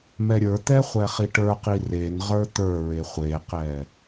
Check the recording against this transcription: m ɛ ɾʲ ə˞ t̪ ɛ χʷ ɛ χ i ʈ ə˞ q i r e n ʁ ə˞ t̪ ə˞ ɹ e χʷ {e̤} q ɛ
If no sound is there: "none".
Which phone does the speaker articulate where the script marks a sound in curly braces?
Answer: e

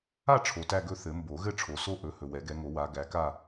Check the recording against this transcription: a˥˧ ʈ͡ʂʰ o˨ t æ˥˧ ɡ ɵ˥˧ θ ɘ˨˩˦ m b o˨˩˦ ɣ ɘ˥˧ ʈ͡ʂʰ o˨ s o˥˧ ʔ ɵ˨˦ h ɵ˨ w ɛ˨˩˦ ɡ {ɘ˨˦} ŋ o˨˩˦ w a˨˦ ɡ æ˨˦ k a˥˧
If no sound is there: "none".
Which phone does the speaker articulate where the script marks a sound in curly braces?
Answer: ɛ˨˦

